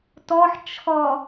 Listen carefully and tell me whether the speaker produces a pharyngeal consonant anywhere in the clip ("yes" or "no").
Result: yes